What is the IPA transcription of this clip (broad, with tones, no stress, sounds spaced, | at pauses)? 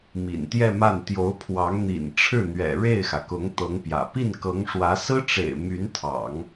m ḭ˨˩ n t̪ j ɛ˥˧ m a˥˩ n t̪ j o˧˥ ʊ̯ pʰ w ɑ˧˥ ŋ n̪ ḭ˨˩ n ʈ͡ʂʰ ɻ̩˥˩ n̪ ɥ ɛ̰˨˩ ɻ e˥˩ ɪ̯ x ä˩ k ʊ˧˥ ŋ t̪ ɤ˧˥ ŋ p j ä̰˨˩ p i˥˩ n k ɤ˧˥ ŋ ʂ w ä˧˥ s ɹ̩˥ ʈ͡ʂ ḛ˨˩ ɪ̯ m y˧˥ n t̪ʰ ɑ̰˨˩˦ ŋ